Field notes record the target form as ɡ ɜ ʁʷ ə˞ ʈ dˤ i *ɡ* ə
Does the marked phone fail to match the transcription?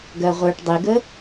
no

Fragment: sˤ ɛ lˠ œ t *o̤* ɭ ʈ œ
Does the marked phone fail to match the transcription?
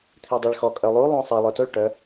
yes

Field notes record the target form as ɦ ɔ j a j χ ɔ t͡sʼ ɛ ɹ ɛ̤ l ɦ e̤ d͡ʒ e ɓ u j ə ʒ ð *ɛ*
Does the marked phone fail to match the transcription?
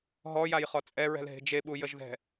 yes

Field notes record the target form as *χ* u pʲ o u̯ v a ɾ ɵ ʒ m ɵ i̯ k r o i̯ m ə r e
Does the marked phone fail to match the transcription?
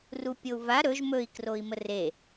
yes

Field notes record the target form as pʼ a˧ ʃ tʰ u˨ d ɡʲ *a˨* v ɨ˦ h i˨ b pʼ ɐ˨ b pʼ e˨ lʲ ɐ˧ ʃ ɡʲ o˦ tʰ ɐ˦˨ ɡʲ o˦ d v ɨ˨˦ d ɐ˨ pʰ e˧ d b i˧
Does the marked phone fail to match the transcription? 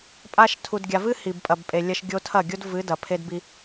no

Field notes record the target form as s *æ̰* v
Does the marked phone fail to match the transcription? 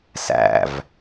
no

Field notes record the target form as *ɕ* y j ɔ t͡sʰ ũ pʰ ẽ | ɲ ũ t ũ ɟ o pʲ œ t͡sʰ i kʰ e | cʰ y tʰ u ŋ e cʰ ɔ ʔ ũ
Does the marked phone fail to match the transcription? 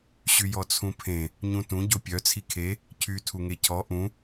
no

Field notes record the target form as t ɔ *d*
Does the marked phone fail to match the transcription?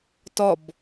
yes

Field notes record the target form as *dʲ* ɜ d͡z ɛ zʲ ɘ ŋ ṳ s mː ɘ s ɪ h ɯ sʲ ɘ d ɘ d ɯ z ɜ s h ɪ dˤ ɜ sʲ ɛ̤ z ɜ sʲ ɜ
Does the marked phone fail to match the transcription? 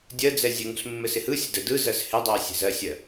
no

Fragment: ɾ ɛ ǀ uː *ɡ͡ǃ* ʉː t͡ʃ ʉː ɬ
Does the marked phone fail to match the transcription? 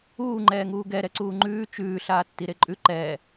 yes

